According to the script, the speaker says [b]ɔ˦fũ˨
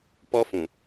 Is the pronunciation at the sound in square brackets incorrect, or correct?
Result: incorrect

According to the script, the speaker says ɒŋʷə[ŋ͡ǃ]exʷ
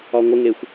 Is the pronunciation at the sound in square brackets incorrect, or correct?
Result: incorrect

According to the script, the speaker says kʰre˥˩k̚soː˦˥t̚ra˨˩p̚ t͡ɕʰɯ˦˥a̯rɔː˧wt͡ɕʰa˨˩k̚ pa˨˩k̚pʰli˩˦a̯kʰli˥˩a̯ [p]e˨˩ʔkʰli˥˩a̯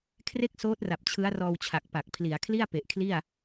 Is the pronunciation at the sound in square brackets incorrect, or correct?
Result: correct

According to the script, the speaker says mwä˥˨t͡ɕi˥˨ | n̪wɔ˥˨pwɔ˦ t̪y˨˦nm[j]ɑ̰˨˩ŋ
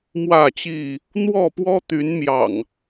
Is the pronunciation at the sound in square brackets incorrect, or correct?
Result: correct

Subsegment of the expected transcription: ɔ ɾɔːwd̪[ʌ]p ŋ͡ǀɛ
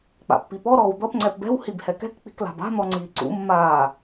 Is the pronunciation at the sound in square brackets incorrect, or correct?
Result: correct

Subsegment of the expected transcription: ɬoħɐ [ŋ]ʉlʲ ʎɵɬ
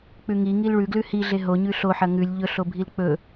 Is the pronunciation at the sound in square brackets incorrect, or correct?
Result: correct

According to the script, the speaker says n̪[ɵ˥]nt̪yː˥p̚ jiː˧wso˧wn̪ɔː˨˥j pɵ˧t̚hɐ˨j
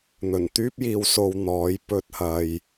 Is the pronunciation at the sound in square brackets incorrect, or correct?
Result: incorrect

